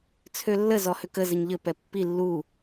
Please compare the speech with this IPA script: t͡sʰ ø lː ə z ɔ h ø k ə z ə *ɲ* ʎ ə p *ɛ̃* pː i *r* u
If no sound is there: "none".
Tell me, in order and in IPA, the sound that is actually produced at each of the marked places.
ɲ, ɛ, lː

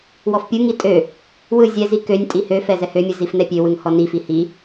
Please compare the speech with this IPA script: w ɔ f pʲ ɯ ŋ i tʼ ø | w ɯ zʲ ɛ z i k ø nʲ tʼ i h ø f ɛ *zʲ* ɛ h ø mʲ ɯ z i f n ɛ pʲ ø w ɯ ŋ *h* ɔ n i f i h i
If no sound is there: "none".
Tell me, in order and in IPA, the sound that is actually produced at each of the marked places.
z, h

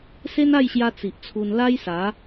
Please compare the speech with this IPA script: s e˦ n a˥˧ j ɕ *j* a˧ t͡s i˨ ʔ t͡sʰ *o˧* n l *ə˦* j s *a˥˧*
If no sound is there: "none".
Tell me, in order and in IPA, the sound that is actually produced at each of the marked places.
j, u˧, a˦, a˨˦

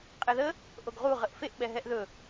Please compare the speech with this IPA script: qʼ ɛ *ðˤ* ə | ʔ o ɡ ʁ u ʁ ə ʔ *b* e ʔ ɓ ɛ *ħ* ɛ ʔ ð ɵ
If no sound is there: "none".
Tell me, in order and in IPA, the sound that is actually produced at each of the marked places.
ð, f, ɦ

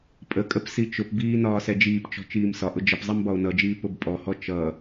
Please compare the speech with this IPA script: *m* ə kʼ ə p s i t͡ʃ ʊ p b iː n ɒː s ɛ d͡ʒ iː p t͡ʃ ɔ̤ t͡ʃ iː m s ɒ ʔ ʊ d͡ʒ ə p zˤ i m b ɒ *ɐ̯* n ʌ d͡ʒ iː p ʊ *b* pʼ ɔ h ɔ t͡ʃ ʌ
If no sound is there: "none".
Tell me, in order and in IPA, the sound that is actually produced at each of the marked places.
pʼ, o̯, b

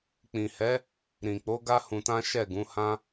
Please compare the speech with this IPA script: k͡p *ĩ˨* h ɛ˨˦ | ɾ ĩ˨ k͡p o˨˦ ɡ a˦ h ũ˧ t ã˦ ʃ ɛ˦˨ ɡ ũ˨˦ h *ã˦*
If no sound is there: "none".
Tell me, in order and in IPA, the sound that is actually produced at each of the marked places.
ĩ˨, ã˦

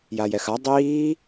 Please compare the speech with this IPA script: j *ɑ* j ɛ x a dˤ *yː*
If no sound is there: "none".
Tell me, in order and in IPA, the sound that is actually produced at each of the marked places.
a, iː

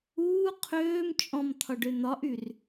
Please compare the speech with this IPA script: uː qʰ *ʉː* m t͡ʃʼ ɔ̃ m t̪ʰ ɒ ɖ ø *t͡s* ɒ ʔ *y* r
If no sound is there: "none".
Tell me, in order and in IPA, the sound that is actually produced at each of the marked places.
øː, n̪, y

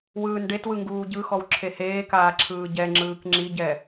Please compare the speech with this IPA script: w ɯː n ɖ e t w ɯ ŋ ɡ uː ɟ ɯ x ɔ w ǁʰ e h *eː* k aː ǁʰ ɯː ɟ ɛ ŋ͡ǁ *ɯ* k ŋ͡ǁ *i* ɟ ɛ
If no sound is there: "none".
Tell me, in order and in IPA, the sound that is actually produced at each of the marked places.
eː, ɯː, i

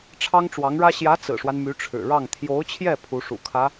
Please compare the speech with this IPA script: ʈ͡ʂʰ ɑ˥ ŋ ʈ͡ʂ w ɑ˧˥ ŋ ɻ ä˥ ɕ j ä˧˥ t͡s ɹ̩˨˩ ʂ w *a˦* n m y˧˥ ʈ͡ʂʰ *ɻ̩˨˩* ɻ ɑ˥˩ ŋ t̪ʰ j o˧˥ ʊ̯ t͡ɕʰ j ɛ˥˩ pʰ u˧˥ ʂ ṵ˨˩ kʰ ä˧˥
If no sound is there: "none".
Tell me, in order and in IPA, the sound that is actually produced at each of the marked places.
a˦, ɻ̩˨˩

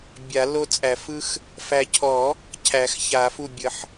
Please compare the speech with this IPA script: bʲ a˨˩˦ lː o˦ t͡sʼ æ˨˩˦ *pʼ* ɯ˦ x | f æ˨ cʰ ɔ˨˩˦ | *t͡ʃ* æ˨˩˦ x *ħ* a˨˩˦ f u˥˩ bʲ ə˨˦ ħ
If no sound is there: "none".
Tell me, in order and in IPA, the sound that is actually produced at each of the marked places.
f, cʰ, ç

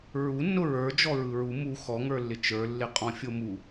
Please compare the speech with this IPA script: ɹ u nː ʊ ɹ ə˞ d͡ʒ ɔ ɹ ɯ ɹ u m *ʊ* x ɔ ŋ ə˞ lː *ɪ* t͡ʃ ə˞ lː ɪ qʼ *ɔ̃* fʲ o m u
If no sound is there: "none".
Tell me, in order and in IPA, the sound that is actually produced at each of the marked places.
u, ɪ, ɔ̃

